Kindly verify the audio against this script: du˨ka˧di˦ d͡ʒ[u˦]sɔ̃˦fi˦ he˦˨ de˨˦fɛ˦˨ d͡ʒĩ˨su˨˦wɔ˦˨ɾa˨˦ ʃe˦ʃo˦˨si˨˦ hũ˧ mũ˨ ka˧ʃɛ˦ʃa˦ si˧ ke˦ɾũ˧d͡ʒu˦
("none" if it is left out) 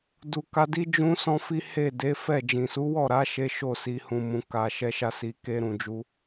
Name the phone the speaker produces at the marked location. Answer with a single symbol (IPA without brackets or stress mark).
ũ˦